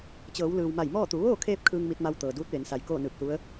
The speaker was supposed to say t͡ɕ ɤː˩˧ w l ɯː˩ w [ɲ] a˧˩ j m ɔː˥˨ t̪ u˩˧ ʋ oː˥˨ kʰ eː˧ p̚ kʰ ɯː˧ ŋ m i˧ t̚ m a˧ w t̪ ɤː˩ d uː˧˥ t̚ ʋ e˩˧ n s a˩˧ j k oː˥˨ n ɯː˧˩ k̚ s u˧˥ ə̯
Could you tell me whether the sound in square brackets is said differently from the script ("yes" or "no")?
yes